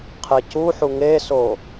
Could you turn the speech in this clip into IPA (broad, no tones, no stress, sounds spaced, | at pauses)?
qʰ e c u ħ u ŋ e s o